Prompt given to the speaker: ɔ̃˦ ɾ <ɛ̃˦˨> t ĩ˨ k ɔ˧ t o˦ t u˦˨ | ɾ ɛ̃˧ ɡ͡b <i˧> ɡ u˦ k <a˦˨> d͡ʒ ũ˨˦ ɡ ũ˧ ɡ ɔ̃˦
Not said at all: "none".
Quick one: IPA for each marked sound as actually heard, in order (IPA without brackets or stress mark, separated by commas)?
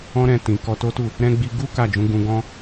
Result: ɛ̃˦˨, i˧, a˦˨